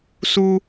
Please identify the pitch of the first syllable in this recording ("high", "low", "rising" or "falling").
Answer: high